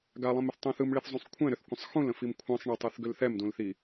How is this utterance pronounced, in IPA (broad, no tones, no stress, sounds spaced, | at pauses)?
ɡ a lˠ ĩ m ʏ θ tˤ ũ θ ɯ m ɭ i θ zˤ ũ sˤ kʷʰ ɛ̃ ɾ ʏ θ kʷ ə̃ sˤ x ũ l ə̃ f i m kʷʰ ã sˤ ɳ ə tˤ ɯ θ ɡ ʏ l θ ɛ m d ũ l θ i